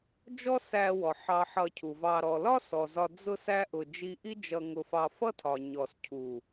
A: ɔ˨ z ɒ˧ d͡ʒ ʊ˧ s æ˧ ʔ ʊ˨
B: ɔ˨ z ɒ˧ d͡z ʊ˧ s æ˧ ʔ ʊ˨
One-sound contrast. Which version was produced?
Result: B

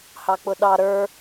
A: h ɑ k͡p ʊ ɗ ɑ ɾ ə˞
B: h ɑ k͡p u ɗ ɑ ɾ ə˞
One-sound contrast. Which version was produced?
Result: A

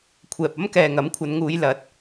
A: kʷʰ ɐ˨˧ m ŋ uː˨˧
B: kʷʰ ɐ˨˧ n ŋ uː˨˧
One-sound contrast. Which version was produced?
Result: B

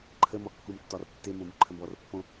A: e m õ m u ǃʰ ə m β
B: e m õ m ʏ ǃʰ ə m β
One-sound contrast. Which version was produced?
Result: A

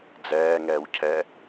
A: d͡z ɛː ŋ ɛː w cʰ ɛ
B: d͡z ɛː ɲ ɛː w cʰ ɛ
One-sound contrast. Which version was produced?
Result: A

